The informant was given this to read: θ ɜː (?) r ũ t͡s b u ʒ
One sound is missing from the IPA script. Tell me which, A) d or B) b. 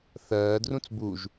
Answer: A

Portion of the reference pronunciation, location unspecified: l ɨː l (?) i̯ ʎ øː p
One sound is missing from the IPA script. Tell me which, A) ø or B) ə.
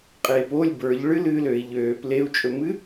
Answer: A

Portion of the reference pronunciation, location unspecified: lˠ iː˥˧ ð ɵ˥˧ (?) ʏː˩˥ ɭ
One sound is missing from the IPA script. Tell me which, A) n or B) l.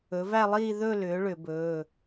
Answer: B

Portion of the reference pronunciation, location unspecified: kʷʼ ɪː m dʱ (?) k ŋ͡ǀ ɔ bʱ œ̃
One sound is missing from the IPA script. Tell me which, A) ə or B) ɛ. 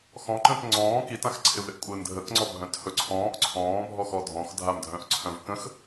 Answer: A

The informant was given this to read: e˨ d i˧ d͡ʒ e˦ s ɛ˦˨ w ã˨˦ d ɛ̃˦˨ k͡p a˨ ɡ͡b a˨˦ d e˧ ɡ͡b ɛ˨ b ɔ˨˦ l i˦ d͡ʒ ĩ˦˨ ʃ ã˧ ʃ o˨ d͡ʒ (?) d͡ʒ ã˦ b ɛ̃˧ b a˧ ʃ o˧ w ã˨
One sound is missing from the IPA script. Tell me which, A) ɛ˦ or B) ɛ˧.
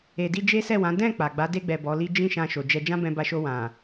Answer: B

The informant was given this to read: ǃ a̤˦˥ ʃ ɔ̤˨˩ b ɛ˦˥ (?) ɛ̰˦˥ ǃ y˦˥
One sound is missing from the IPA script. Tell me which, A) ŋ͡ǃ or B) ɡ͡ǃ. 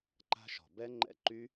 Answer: A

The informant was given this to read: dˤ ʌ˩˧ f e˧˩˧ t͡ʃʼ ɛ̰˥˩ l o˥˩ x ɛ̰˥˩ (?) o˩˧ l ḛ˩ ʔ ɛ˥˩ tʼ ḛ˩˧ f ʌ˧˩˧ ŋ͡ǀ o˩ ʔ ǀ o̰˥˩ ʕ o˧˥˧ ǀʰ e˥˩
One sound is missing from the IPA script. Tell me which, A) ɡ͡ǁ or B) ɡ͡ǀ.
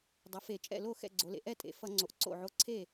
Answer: B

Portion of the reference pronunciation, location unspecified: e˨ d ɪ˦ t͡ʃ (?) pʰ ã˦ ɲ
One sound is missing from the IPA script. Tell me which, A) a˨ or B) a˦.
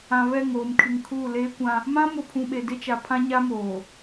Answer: A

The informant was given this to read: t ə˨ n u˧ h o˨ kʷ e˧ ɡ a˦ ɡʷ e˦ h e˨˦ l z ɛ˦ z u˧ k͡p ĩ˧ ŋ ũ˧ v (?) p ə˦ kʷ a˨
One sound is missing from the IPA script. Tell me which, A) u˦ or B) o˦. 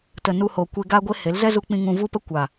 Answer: A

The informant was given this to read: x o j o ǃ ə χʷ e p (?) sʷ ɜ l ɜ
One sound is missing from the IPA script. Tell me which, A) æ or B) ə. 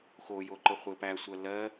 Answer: A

